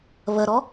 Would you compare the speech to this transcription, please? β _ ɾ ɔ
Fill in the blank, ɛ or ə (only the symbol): ə